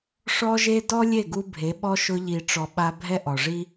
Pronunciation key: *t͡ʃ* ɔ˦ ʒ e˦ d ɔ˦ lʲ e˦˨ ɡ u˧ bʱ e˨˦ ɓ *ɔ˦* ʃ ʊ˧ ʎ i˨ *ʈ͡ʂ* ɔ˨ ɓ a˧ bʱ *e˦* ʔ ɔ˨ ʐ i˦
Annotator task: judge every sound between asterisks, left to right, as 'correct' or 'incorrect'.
incorrect: ʂ, correct, correct, incorrect: ɛ˦

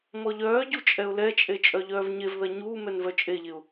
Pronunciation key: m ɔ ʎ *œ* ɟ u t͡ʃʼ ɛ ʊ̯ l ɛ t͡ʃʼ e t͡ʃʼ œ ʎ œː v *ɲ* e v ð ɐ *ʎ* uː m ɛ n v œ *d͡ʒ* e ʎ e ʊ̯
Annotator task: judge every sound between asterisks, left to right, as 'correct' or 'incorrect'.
incorrect: œː, correct, incorrect: ɲ, incorrect: t͡ʃʼ

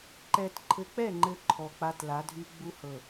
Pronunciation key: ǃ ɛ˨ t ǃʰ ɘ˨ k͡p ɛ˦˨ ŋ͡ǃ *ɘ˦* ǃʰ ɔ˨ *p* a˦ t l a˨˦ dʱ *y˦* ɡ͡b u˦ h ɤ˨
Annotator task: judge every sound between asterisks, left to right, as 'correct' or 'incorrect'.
incorrect: ɘ˨, incorrect: k͡p, correct

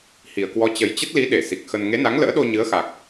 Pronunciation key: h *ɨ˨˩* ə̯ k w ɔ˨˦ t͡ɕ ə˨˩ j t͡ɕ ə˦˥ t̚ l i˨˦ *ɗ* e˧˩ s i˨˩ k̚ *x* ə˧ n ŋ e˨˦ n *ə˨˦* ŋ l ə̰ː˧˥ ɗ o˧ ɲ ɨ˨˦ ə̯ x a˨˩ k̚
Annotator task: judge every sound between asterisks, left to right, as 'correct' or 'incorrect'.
incorrect: i˨˩, correct, correct, incorrect: a˨˦

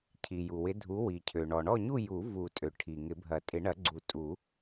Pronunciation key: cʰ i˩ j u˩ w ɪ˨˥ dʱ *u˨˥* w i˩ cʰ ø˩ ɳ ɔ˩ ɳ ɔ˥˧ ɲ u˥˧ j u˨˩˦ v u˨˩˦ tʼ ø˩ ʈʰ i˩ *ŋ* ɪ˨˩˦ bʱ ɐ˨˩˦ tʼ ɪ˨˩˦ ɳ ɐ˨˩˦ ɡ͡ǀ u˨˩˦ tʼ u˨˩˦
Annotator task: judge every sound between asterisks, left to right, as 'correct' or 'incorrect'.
correct, correct

